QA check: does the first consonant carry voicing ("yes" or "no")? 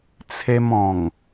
no